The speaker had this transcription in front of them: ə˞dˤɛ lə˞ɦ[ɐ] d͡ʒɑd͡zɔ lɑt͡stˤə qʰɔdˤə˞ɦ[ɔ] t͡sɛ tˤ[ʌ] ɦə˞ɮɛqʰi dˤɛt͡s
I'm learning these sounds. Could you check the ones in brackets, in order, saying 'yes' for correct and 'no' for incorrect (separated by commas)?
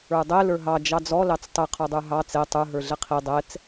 no, no, no